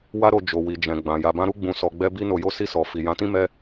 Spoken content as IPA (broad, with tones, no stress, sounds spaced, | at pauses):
w a˦ ɾ o˧ d͡ʒ o˨ w i˨ d͡ʒ ɛ̃˨ ɡ͡b ã˨ j a˧ b ã˦ ɾ u˦ ɡ͡b ũ˧ s ɔ˧ ɡ͡b ɛ˦ b i˦ n o˧ j o˦ s i˦˨ s ɔ˨ f i˨ j ã˨˦ t ĩ˦ m ɛ˦